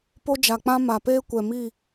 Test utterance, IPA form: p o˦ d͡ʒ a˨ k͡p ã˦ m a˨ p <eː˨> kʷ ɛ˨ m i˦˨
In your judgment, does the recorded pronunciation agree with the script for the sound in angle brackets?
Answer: no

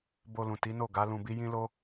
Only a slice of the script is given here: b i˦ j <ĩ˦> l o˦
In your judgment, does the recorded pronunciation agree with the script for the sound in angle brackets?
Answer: yes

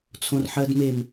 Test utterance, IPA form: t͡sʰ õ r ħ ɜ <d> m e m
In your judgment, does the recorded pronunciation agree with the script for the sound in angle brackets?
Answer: yes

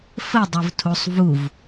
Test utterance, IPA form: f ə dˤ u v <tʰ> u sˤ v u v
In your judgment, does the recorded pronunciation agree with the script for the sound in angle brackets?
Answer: yes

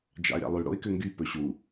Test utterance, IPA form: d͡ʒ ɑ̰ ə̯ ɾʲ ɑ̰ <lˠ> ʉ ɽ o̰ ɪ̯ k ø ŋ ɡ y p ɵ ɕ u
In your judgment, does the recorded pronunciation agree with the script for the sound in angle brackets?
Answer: yes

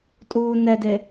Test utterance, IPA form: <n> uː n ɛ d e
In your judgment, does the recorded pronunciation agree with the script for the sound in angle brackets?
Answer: no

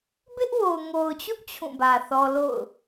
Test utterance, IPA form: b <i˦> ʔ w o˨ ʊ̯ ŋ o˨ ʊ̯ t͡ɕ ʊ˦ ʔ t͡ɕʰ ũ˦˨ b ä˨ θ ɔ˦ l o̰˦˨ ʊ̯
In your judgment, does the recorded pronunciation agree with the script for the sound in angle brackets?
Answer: no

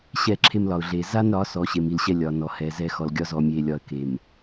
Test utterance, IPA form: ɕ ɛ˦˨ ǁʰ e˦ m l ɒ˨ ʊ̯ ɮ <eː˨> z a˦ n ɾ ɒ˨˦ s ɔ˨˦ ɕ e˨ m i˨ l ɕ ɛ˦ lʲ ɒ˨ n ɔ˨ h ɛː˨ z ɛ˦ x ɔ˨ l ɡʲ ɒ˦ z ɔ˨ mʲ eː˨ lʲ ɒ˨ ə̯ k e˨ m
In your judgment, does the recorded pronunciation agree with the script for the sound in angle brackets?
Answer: yes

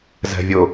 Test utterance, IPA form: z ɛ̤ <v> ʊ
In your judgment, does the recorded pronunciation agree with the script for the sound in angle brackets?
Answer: no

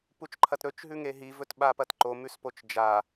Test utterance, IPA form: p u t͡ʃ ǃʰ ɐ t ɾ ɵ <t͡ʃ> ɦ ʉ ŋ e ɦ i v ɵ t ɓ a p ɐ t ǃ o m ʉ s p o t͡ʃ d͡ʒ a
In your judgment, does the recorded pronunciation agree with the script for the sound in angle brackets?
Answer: yes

